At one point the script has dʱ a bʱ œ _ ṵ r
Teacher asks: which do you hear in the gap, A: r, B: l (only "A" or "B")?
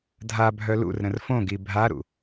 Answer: B